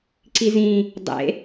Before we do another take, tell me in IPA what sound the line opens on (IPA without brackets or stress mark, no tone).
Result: ǀ